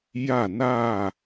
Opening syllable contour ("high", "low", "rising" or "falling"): falling